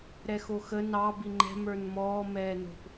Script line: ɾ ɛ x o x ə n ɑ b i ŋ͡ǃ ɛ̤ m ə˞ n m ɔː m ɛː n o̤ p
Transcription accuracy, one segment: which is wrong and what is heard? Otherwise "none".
none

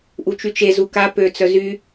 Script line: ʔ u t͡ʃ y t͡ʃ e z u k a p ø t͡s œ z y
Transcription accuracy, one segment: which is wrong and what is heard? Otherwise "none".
none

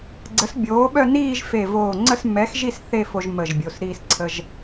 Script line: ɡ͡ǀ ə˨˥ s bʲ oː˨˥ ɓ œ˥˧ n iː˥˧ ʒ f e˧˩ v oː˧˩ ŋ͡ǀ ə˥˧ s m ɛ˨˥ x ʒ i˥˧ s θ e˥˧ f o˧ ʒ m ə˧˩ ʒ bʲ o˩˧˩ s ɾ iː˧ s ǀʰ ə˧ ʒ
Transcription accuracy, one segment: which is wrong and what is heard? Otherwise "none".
none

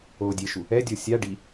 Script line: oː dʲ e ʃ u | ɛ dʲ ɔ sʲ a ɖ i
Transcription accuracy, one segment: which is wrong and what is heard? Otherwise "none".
none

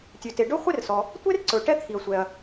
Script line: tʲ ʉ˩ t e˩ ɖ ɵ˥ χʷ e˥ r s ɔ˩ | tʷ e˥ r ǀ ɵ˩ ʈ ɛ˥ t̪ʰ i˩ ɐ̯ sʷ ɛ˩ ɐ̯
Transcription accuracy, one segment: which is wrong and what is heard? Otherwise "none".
none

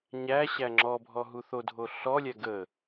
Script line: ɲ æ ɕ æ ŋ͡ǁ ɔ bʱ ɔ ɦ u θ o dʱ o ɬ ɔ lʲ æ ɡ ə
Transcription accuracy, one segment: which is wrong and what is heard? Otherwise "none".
none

